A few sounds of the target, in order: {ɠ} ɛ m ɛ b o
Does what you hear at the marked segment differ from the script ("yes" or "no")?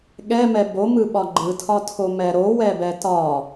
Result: no